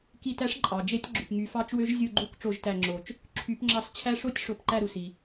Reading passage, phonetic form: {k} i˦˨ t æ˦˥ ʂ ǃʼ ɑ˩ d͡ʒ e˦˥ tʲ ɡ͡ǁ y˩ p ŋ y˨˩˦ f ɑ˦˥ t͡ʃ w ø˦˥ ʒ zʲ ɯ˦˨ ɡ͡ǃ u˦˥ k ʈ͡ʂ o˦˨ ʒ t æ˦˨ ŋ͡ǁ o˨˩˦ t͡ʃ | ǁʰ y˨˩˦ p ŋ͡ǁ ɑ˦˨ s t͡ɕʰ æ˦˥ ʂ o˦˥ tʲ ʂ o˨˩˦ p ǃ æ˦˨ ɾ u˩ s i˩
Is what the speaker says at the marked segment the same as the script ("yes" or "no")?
yes